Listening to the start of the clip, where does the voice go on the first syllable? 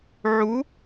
rising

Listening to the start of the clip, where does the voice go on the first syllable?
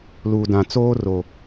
low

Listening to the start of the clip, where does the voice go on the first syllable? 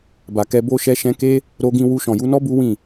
low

